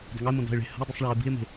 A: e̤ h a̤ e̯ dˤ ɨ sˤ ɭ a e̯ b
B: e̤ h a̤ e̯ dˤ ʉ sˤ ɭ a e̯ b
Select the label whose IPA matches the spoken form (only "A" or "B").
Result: B